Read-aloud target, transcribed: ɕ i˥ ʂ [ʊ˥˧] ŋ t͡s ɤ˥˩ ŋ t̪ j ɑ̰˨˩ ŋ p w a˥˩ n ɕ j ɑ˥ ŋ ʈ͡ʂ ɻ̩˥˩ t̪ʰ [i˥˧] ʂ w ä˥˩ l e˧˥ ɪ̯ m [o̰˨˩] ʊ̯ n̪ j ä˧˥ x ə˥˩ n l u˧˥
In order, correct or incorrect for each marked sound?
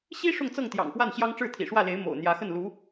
correct, incorrect, correct

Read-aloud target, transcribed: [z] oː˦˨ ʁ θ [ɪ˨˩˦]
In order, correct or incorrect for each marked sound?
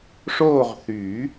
incorrect, incorrect

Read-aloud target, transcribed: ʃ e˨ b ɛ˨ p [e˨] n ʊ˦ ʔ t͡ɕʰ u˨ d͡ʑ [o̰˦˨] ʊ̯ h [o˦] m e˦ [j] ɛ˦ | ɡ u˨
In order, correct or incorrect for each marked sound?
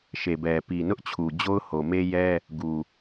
incorrect, incorrect, incorrect, correct

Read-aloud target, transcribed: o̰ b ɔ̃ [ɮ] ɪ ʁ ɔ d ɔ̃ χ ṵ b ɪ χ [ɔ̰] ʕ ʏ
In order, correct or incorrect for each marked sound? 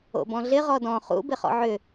correct, correct

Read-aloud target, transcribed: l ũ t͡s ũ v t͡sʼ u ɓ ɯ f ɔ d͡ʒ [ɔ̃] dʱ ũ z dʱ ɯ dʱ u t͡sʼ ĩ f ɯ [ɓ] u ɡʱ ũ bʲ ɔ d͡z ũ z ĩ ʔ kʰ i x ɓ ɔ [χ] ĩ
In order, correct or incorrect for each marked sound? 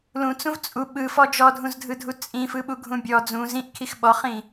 incorrect, correct, correct

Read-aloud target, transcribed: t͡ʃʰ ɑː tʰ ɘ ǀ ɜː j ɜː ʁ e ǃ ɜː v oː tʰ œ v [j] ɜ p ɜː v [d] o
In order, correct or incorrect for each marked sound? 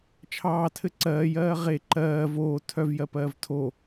correct, incorrect

